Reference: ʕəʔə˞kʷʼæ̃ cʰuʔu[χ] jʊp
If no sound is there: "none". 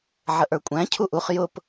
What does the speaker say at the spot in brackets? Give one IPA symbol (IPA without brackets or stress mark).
χ